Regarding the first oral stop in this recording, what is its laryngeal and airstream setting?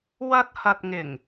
plain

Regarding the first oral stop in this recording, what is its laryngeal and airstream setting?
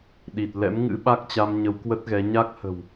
implosive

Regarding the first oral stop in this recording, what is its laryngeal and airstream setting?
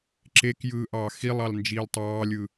click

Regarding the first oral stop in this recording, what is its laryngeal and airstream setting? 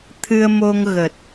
aspirated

